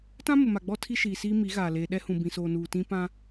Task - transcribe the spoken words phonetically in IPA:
t ã˦ m ʊ˨ m a˨ ɡ͡b ɔ˦ tʰ i˦ ʃ iː˨ s iː˦ m i˨˦ ɣ aː˨ l eː˨ ɗ ɛ˦ h ũ˨ b ĩ˨ s oː˨ n uː˨ t ĩ˦ p ã˦

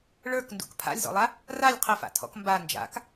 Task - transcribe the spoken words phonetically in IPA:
ɭ ə˞ k n d ṵ k pʰ a̰ lʲ z ɔ̰ lˠ a | r a lʲ qʰ ə f a̰ tʰ ɔ̰ k m b a n d͡ʒ a̰ k

